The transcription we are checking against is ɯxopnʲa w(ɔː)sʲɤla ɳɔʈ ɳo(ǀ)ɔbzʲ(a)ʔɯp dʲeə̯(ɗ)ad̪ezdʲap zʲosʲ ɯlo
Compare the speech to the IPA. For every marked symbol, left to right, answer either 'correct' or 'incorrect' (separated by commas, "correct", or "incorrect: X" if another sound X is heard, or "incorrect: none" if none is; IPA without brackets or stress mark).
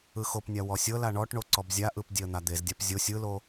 incorrect: ɔ, correct, correct, incorrect: n̪